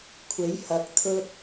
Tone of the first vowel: rising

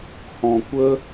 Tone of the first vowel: low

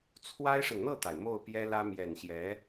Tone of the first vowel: high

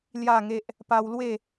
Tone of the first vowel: falling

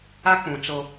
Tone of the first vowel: high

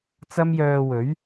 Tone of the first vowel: high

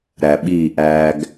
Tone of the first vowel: low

